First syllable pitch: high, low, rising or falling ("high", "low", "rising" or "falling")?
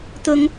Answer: high